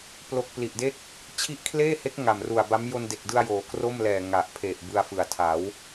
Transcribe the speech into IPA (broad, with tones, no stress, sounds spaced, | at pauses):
p l o˥˩ k̚ p l i˨˩ ʔ d e˥˩ k̚ | t͡ɕʰ i˦˥ ʔ kʰ l eː˥˩ h e˦˥ k̚ ŋ a˨˩ m r u˨˩ a̯ b a˦˥ m j o˧ n d e˨˩ k̚ d ɯ˧ a̯ j oː˩˦ k r o˥˩ m l ɛː˨˩ ŋ a˨˩ ʔ pʰ e˨˩ ʔ b ɯ˧ a̯ f ɯ˨˩ a̯ tʰ a˩˦ w